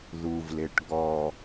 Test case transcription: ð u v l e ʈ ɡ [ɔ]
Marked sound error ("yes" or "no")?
no